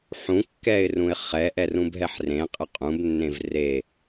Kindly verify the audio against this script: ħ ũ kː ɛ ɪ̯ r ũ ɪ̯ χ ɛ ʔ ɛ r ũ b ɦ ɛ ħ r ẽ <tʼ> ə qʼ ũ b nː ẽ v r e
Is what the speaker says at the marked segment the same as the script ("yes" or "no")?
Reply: no